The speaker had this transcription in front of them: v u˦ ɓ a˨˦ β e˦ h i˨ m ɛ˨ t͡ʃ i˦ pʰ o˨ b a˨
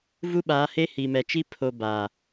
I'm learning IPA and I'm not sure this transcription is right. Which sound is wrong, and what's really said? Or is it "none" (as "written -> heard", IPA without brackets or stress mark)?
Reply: β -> h